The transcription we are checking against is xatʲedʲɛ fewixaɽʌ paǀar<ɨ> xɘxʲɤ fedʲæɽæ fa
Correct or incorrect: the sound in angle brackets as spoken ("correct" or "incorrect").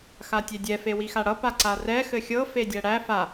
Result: incorrect